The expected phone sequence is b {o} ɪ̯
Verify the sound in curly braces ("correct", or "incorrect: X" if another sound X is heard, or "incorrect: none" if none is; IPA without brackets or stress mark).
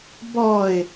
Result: incorrect: ɔ